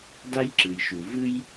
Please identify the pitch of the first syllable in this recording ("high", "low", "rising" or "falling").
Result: high